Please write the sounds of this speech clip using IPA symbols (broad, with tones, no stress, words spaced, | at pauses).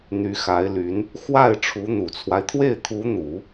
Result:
n̪y˧˥xa˧˥ɪ̯ly˧˥n | xwa˥˩ɪ̯ ʈ͡ʂʰu˧˥n̪u˨˩t͡sʰwa˦ɪ̯ t̪ʰwe˥˩ɪ̯t̪ʰu˧˥n̪u˨˩˦